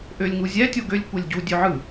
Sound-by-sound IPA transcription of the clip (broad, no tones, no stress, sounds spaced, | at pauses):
ʔ ø lʲ ŋ u zʲ æ tʲ o ɡ ø lʲ kʷ e lʲ ɟ u dʲ ø ʕ ɯ